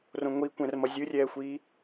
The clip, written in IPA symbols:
r õ ŋʷ i kʷ ɛ̃ r m ʌ zʲ ɯ rʲ ɛː xʷ iː

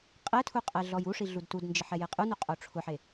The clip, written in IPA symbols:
qʼ ɛ tʰ u qʼ ɛ ɮ ɔ j u ʂ i ɮ u d t u d n d͡ʒ ɪ ħ ɛ j e qʼ u n u qʼ o ʈ͡ʂʰ ʊ ħ e

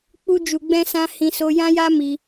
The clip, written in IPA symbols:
k͡p u˧ d͡ʒ u˨ ɡ͡b ɛ̃˧ s ã˧ h ĩ˧ s o˧ j ã˦ j a˦ m i˧

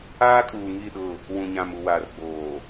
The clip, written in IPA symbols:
aː˦ kʼ uː˨ ŋ i˦˨ ɗ ʊ˦˨ | w ũ˨ ɲ ã˨ m u˨ w aː˨ r ɡ͡b oː˨

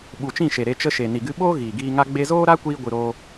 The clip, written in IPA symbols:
ɓ u˨ t͡ʃ ĩ˦˨ ʃ e˨ ɾ e˧ t͡ʃ ə˧ ʃ e˨ n i˨ ɡ ɨ˧ ɓ oː˦ ɣ iː˨ ɡ iː˧ ŋ a˦ ɡ͡b e˧ z oː˦ ɾ a˦ kʷ iː˦ ɡʷ ɨ˧ ɾ oː˦

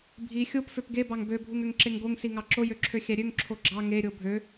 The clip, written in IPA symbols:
bʱ i xʲ o p f ø p ɡ e b ɑ ŋ b ø bʱ u ŋ ø ŋ ǁ e ŋ ɡ o ŋ s i ŋ ɑ ǁ o j ø ǁʰ ø xʲ æ ɾʲ ø ŋ ǁʰ o ɡ͡ǁ ɑ ŋ e ɾʲ o bʱ ø

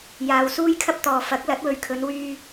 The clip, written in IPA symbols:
j aː˨ w s uː˧ j kʰ ɐ˧ p̚ t̪ ɔː˨ f ɐ˨˥ k̚ l ɐ˨˥ t̚ w ɵ˨˧ ɥ kʰ ɵ˨˧ n w yː˧

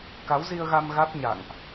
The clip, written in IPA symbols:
k a˨˦ w z i˧ ə̯ ɣ a˧ m ɣ a˦˥ t̚ ɲ a̰˧˨ ŋ ʔ

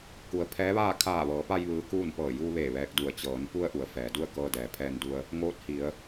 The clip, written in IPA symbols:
k u˩˧ ə̯ pʰ ɛː˧˥ ʋ aː˥˨ kʰ aː˧˩ ʋ ɤː˩˧ p a˧ j ʋ ɯː˧˥ k uː˥˨ n p ɤː˧˩ j uː˧ ʋ eː˧˩ ʋ ɛː˧ k̚ d u˧˩ ə̯ t͡ɕ ɤː˩˧ n p u˧ ə̯ ʔ u˩˧ ə̯ f ɛː˩˧ d u˥˨ ə̯ k ɤː˧ d ɛː˩ pʰ ɛː˧ n d u˧ ə̯ | ŋ oː˧˥ t̚ h i˩˧ ə̯

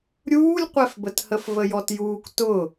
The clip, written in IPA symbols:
ɾʲ uː lʲ qʷ ɛ f b ə t h ə f v ə j ɔ t j uː k t ʊ

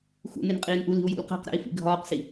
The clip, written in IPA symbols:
x ṵ n e n qʼ iː n ʔ u l i̤ u̯ j ṵ l q æ̤ q ɾ æ̰ i̯ f ḭ ɡʱ ɒː q s i

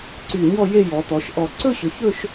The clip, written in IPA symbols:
ǀ y˧˩ ɲ ɔ˥˧ j e˥˧ j ɔ˩˧ t̪ ɔ˩˧ ʃ ʔ ɔ˧˩ ǀ ɵ˥˧ ɕ ʏ˩˧ ç ɵ˥˧ ʃ

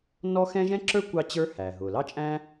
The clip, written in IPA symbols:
n ɔ˥ x ɛ̃˥ ʒ ɛ̃˥ ǁ ə˞˥ kʷ ɑ˥ t͡ɕ ə˞˥ h æ˩ ɦ ʊ˩ l ɑ˥ t͡ʃʼ æ̃˥

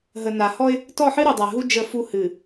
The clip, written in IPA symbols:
ɦ ə˨ n a˨ h ɔ˦ ɪ̯ | t ɔ˦˨ ħ ɨ˦ ɾ u˨ dˤ a˨ ɦ u˦ d͡ʒ ə˦˨ f u˦ h ɨ˨

